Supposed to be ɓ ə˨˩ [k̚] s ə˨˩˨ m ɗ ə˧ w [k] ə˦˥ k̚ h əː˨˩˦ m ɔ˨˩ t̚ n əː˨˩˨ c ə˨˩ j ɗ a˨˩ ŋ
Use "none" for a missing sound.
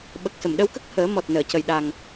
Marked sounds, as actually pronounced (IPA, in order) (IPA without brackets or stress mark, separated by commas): k̚, k